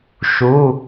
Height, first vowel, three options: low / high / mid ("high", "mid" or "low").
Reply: high